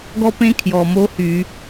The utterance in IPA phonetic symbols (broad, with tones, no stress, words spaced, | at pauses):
ɡɔ˥pẽ˥kʰjɔ˨˩mo˧˥ hy˧˩˧